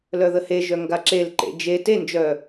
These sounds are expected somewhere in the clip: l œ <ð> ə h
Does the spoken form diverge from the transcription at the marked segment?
no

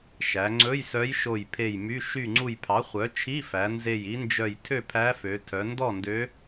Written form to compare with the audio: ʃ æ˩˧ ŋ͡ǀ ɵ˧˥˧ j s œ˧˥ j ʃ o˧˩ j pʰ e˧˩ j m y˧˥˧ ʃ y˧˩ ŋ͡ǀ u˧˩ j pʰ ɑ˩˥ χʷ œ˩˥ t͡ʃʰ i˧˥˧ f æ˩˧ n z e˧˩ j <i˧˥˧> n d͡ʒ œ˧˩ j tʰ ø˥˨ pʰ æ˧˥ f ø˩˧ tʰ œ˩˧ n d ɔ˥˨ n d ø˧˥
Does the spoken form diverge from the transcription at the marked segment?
yes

